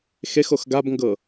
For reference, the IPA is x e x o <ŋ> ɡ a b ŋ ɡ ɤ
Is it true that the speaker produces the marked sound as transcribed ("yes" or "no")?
no